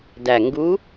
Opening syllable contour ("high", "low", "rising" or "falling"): low